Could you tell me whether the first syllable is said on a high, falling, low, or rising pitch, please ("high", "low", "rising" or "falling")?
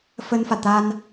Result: high